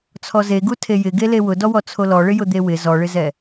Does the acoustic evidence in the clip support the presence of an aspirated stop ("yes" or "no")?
yes